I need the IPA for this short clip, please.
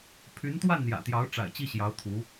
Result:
pʰy˧˥nt̪wa˥˩nn̪jä̰˨˩t̪jɑ˧˥ʊ̯ ʈ͡ʂa̰˨˩ɪ̯t͡ɕi˥˩ɕjɑ˧˥ʊ̯ t̪ʰu˧˥

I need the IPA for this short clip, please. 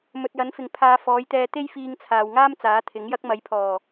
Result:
mɵ˨t̚ jɐ˨˥nfɪ˨ŋ pʰaː˨˧ fɔː˨˥jt̪ɛː˧ t̪e˥jfiː˧ŋt͡sʰaː˨wŋaː˥m t͡saː˨˥t̪ʰɪ˨˥ŋjɐ˥k̚ mɐ˨˥jpʰɔː˨˩

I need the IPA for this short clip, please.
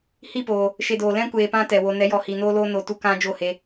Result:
hi˦˨poː˨ | ʃe˦doː˧ lɛ̃˦ kʷeː˧pã˦tɛ˨wo˧ nɛ˨˦jɔ˨hi˨ noː˦loː˦no˧ tu˦kã˦d͡ʒo˦˨he˧

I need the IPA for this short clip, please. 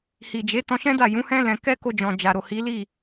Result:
hi˨d͡ʒe˨˦ tɔ̃˧ʃɛ̃˦da˦˨ jũ˨˦hɛ̃˦ lɛ̃˧ kɛ˦ko˧d͡ʒɔ̃˨ d͡ʒa˨ɾo˨ hi˨˦li˦˨

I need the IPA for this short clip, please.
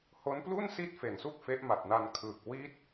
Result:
ho˦˥nplu˥˩n si˥˩t̚fe˨˩nsu˥˩k̚ fe˦˥ʔma˨˩t̚na˧nkʰɯː˨˩k̚ wi˦˥t̚

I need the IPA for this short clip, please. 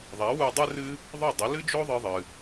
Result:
ðˤɛ˩˥wu˧ dˤɨ˥ rɨ˥ | ðˤo˥˩dˤɐ˩˥lɨ˥d͡ʒo˥ ðˤɨ˧ðˤɨ˩

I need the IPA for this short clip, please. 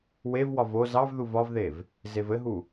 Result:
wevwɒv o zɑvðuv ɒvðev | zevɘɦu

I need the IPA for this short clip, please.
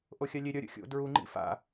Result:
ʔoxʲalʲe ɾʲʌ ɾʲṵxʲo̰ dɹu ŋ͡ǃḭfa̰

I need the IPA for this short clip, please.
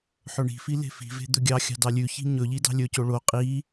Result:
ħɵɳi̤fi le̤fi̤ve̤ d̪ɵɡʲɑxʲɑ̤ dɑlʲʉçi̤ ɲɵʎi dɑ̤lʲɵco ɭo qʼi

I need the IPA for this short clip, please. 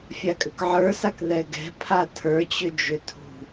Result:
fʲakʼʏkʕə˞sak ðɛɡɛ̤ pʰatʰə˞t͡ɕʏ d͡ʒʏtʰṳ

